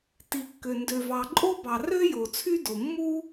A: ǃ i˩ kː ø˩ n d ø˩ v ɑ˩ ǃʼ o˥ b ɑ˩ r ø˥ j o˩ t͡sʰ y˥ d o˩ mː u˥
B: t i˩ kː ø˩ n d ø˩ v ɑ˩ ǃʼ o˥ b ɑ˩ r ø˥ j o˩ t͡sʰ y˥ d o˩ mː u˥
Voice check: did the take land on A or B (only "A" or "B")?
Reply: B